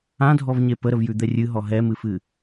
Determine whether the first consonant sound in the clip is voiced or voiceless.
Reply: voiced